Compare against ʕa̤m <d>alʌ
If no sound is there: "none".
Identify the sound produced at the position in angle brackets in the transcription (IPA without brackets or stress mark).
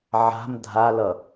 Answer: dʱ